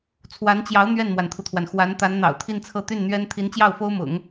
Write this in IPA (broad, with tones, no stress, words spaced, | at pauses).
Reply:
t͡sʰwa˧˥nt͡ɕjɑ˧˥ʊ̯ n̪ɥɛ˥˩nmwa˩nt̪ʰu˩t̪ʰwa˩n xwa˧˥n t̪a˧˥nn̪ɑ̰˨˩ʊ̯t̪ʰi˥˧nt͡sʰɤ˥˧ t̪y˥˩nn̪ɥɛ˥n t̪ʰi˧˥nt͡ɕjɑ˥˩ʊ̯ fo˥ʊ̯mʊ̰˨˩˦ŋ